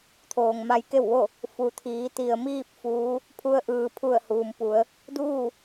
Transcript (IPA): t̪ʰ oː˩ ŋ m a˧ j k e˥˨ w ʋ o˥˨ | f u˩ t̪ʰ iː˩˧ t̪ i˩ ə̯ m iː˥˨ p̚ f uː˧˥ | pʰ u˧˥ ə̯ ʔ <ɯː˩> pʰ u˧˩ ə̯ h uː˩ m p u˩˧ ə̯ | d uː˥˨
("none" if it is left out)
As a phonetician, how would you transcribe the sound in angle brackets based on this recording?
ɯː˩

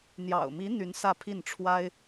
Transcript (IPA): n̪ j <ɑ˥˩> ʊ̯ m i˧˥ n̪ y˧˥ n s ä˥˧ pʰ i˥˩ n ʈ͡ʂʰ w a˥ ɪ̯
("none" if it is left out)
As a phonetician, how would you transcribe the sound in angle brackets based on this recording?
ɑ̰˨˩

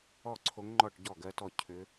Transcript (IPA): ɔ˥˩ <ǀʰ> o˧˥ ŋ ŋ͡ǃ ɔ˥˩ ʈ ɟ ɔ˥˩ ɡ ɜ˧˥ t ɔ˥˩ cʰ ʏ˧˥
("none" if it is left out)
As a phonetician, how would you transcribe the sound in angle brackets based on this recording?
ǀʰ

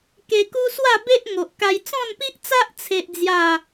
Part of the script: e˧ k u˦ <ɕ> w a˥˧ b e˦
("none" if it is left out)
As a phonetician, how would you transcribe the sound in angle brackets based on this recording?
s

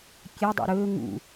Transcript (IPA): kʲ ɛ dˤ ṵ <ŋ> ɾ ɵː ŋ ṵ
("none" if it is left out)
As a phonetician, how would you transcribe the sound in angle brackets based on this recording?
none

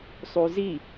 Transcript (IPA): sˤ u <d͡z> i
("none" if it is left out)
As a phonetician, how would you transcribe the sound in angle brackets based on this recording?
z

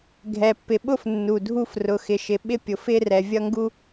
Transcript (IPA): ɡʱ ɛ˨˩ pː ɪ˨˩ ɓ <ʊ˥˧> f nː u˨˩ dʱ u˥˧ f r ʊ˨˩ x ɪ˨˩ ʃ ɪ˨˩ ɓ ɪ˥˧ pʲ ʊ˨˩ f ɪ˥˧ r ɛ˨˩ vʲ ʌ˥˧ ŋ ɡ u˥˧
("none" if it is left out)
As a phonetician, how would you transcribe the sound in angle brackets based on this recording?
ʊ˥˧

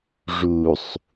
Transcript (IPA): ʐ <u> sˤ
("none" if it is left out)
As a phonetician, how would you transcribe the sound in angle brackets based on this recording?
u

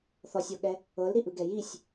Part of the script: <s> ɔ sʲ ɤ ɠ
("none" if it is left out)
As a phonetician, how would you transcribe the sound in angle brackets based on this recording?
θ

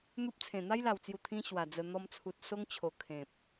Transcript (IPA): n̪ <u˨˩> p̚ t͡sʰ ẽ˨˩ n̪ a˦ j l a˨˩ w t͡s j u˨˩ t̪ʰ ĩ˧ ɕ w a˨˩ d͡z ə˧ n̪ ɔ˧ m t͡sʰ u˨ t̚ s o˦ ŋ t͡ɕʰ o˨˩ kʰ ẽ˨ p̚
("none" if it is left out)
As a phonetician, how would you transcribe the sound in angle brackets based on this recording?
u˦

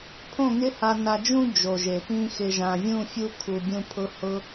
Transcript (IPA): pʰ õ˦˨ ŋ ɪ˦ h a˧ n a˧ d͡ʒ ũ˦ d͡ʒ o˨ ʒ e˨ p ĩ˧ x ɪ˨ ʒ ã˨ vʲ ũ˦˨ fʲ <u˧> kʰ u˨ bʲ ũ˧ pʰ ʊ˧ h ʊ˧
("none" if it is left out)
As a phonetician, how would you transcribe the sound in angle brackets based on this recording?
u˧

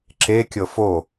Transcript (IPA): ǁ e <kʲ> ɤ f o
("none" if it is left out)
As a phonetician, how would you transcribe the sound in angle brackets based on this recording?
kʲ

